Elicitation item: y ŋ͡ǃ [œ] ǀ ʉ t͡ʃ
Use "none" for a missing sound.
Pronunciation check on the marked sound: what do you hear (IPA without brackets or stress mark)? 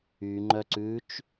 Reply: œ